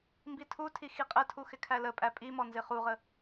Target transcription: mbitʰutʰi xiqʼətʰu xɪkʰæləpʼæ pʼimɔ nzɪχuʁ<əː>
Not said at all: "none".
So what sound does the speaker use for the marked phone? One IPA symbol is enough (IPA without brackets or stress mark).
ə